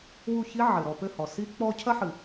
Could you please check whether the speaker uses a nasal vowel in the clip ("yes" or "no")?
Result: no